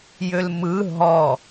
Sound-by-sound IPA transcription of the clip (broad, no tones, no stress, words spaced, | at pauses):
jølmɯ ɦɔ